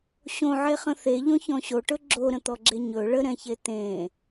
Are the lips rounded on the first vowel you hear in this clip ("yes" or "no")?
yes